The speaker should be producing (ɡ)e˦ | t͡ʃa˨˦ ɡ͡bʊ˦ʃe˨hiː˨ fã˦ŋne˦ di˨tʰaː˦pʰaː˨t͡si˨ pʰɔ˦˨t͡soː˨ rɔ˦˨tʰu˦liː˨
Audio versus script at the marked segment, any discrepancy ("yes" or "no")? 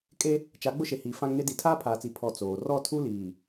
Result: yes